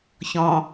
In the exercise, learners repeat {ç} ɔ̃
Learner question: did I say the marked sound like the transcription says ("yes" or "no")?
yes